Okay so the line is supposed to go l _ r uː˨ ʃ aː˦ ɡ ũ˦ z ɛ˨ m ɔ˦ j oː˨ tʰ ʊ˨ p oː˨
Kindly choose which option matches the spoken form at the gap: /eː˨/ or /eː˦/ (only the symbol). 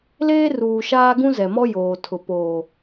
eː˦